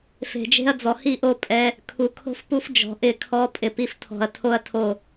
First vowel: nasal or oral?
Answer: oral